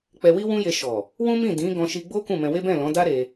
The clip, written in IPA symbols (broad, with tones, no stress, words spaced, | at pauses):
k͡pɛ˧wi˦wũ˦je˧ ʃɔ˨ | wũ˦mĩ˦˨ dĩ˨˦ɡɔ̃˧ʃi˧ɡ͡bo˦ kũ˦˨mɛ̃˧we˦ bɛ̃˦˨lɔ̃˨˦da˦ ɾe˧